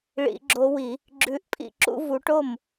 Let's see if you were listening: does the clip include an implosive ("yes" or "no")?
no